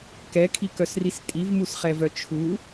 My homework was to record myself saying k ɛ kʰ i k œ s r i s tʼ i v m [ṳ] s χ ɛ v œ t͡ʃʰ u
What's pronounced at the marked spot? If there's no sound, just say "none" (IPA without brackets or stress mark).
u